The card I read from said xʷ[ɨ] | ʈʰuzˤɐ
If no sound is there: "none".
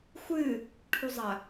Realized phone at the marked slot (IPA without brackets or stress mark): ɨ